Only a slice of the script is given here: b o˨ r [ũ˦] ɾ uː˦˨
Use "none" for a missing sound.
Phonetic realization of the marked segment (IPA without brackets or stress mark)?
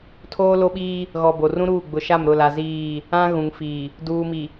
ũ˦